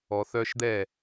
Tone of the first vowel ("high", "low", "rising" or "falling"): low